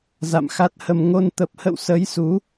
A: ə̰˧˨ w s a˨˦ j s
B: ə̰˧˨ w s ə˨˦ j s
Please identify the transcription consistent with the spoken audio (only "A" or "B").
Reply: B